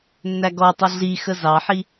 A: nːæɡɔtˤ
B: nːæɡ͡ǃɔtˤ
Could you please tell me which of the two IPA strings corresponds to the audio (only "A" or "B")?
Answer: A